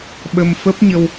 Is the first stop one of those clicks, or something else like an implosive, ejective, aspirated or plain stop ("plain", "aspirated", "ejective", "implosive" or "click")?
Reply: implosive